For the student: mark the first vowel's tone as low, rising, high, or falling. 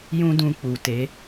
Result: high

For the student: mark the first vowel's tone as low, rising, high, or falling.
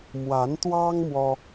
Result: rising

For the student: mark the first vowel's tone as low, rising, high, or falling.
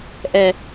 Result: low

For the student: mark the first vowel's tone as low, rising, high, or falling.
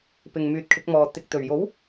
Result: low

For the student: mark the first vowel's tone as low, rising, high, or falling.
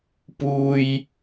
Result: low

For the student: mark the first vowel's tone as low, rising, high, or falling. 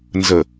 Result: low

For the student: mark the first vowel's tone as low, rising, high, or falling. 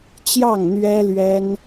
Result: falling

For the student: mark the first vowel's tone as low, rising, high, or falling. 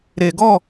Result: low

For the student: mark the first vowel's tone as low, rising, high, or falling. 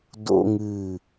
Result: high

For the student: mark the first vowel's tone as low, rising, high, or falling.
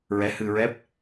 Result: rising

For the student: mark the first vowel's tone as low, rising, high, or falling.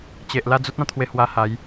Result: low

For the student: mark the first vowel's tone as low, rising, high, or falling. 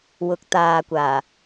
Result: rising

